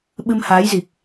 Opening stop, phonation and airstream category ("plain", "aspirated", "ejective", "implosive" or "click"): implosive